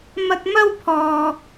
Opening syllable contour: high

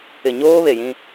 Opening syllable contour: low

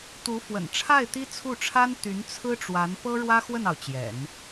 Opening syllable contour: rising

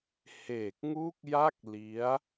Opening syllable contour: low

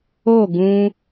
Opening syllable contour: falling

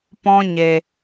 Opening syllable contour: high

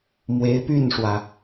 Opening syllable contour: rising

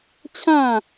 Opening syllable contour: falling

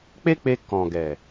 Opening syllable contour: high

